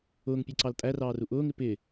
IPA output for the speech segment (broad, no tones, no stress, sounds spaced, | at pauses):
ʊː ŋ pʲ ɛ ǀ ɑ l tʼ æ r ɑː r u ʔ ʊː ŋ ɪ p ɪ